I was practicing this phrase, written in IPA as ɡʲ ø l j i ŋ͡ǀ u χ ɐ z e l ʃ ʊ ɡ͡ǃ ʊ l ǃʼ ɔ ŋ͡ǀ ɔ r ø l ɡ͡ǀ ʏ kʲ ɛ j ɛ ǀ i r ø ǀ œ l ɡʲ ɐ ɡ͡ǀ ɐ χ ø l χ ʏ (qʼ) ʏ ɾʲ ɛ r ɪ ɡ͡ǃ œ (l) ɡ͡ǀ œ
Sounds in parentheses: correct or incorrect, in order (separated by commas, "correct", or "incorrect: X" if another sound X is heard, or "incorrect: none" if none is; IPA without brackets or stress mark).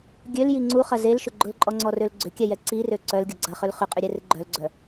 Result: correct, correct